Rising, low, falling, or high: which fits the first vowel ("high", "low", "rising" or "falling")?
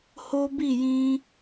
high